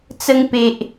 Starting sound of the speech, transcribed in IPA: t͡s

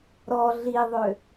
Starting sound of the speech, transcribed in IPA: ɾ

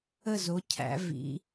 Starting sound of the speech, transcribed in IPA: ə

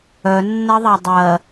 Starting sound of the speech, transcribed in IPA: œ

